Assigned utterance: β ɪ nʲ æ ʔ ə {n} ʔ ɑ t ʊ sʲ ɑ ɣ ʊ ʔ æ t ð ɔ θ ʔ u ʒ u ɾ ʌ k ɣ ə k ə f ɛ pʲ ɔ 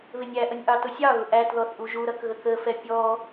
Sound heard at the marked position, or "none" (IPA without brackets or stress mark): nʲ